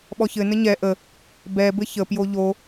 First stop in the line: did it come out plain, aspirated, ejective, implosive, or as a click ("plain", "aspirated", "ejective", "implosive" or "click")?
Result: implosive